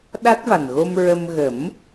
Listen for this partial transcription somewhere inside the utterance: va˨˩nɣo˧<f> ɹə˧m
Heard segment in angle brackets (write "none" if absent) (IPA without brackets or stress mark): m